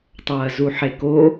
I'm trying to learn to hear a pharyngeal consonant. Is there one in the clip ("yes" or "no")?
yes